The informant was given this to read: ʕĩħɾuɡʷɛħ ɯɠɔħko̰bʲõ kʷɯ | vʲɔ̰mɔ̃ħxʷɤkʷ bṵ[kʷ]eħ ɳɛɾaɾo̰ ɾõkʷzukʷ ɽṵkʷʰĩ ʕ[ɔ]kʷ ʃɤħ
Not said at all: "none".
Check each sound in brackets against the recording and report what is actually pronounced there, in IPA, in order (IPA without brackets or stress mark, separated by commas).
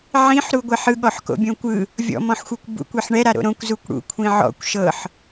kʷ, ɔ̰